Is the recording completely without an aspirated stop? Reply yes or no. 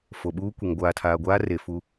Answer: no